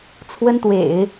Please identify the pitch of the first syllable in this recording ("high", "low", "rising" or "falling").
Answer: high